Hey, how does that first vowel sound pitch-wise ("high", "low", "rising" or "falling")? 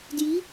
rising